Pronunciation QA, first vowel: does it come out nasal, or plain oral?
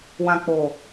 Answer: nasal